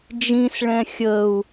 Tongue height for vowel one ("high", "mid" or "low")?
high